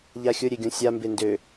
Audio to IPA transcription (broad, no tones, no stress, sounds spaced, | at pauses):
ʎ a xʲ ʊ ɾʲ e ɡʲ õ sʲ a m b e n d ø